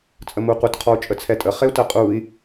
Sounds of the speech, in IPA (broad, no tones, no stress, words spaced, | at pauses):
t͡sʼəmuqʷət qʰɔu̯t͡ʃʼət͡sʰɛtʼə χeu̯tɜqʼui̯